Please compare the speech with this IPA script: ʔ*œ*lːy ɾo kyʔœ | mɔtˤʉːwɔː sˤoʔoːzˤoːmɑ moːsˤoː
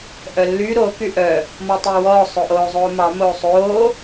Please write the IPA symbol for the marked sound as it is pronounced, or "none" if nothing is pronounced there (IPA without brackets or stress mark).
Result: œ